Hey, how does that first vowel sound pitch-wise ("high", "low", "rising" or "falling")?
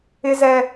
high